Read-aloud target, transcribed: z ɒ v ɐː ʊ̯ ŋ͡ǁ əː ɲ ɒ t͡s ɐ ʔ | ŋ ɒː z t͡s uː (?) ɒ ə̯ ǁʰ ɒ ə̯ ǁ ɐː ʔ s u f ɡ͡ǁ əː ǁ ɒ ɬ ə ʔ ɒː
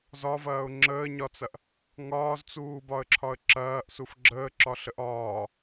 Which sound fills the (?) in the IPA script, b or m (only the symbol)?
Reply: b